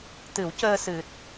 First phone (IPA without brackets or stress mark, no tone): t̪